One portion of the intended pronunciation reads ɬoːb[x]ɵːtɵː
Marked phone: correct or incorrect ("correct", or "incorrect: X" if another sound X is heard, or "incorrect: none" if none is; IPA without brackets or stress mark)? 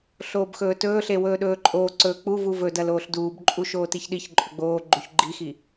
correct